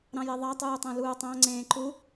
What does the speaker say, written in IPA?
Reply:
ɾɑ̃jeðˤɑ tˤuːtˤõluːtˤɑ̃ ŋ͡ǀẽːǃu

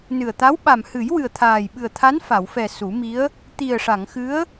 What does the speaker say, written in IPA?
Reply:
nɨ˨˩ə̯t̪a˧˥w ɓa˨˩mhɨ˨˩˦j wɨ˨˩ə̯t̪ʰaː˨˩jɓɨ˨˩ə̯t̪ʰa˧˥n fa˨˩˨wfɛ˨˩ su˨˩˦mi˧˥ə̯ | t̪i˨˩ə̯ʂa˨˩˨ŋ xɨ˧˥ə̯

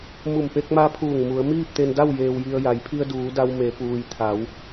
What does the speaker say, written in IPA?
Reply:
mu˧˩mpe˧k̚ma˧pʰuː˧˩ŋ mu˩˧ə̯miː˥˨p̚t̪e˧nda˥˨w jeː˧wji˧ə̯ ja˩˧jpʰi˧ə̯duː˩˧ da˧wme˩˧puː˩j t̪ʰa˩˧w

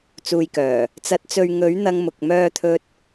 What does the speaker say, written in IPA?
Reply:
t͡suː˨jkœː˨˩ | t͡sɐ˨˥t̚t͡sɵ˨ɥ ŋɵ˨˥ɥ n̪ɐ˧ŋmʊ˨k̚ mœː˧t̪ʰɵ˧t̚

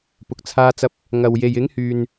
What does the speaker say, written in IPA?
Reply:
pʊ˨k̚t͡sʰaː˧t͡sɐ˧p̚ | ŋɐ˨w je˨jɪ˨˥ŋhyː˨n

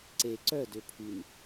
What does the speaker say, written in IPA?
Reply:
ǀe ǀœ døpʰyn

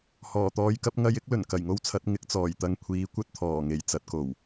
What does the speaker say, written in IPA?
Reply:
hɔː˨˩t̪ɔː˨˧jkɐ˨˥p̚ ŋɐ˧jɪ˥k̚ lɵ˨˩nkɐ˨˩jŋo˥wt͡sʰɐ˨˥t̚ ŋɪ˨˥k̚t͡sɔː˨˩jt̪ɐ˧ŋ kʷʰiː˨˧kʷɐ˥t̚ t̪ʰɔː˨˩ŋe˨˩j t͡sɐ˨˥t̚ko˨˩w

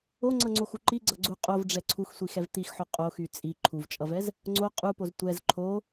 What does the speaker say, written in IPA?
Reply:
oŋ͡ǀʌŋ͡ǀoxu ǃiɡ͡ǀʌɡ͡ǀu qʼovɖ͡ʐɛ ǀʰuxsʷixɛv t̪ixħo qʼoxy t͡sʼi ǃʰuvt͡ʃʼʌvɛz | ŋ͡ǀo qʼupoz tʷɛz ǃʰo

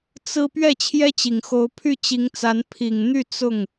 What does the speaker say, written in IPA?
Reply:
t͡sɹ̩˥ pɥɛ˥˩t͡ɕʰjɛ˥t͡ɕi˨˩ŋ xo˧˥ʊ̯pʰy˥˩ t͡ɕi˧˥ŋt͡sa˧˥n pʰi˨˩ŋn̪y˥˧ t͡sʊ˥˩ŋ

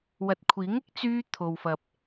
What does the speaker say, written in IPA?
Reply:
wɐ˨t̚kʷʰiː˨˥ŋ ɪ˥k̚t͡syː˧ t̪ʰo˨wfɐ˨p̚

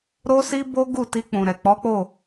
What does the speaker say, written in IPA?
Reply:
ɾo˦si˦bo˦ɡu˦˨ ti˧k͡pũ˨ɾɛ˨ k͡pɔ˨˦k͡po˦˨

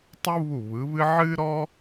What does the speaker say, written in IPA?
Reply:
tˤu˥βu˦˨βɯ˨˦βɨ˥ ʕɨ˥ɾɔ˥

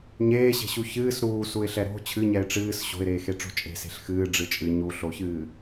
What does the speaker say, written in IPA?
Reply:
ɲeːɕe̤ɕu çɨːs ɾuːsuɪ̯ɬɛ ɾo̤ t͡ɕʰɨɲɛɪ̯ ʈ͡ʂɨːs ɕo̤ɪ̯ɾeːxeʈ͡ʂo̤ t͡ʃʼe̤se̤ɬ xɨːɖ͡ʐɨ t͡ʃʼɨ ɲuɬoçɨː

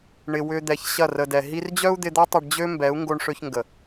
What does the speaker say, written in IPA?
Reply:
ɳɪ˨wʏ˧ d̪ɛ˨çɕɐ˦˨rə˨dɛ˨ ɦi˧rd͡ʑœ˦u̯d̪ɪ˧d̪ɐ˦ tˤɪ˧ɖd͡ʑø˦mbɛ˨˦u̯ ŋɡo˧ɳʂø˧çŋɡə˨

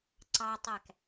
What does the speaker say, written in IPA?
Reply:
ǀɑtˤæk

